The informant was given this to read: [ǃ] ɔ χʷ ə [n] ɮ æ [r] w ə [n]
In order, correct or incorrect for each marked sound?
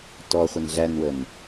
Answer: incorrect, correct, incorrect, correct

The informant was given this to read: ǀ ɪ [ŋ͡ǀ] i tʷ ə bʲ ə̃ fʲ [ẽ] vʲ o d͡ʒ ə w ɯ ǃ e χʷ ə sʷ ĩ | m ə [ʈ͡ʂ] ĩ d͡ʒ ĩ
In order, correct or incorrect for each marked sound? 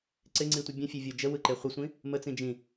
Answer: correct, incorrect, incorrect

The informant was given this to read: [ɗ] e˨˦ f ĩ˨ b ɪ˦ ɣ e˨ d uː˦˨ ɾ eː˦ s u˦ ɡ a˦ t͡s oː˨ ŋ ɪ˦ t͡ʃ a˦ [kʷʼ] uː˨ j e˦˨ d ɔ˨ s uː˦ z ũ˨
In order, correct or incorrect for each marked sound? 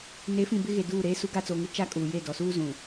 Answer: incorrect, incorrect

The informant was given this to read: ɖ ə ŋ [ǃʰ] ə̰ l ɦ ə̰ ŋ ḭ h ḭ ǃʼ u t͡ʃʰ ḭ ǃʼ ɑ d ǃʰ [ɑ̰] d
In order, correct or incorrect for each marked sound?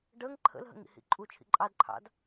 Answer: correct, correct

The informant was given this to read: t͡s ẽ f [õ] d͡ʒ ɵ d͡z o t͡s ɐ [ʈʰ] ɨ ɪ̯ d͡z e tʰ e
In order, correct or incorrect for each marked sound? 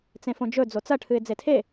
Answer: correct, correct

